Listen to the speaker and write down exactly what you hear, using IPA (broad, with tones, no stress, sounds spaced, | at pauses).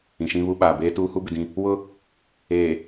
ĩ˨ ʃ ĩ˦ β u˦ ɓ aː˨ b eː˦ t uː˦ h u˦ b ɪ˨ d ĩ˦ | w ʊ˦ | eː˨